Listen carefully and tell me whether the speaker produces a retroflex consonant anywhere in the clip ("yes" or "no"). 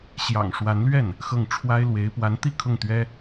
yes